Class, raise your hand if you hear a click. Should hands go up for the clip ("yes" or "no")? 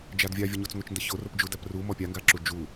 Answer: yes